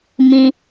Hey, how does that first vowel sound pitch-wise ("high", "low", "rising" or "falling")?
high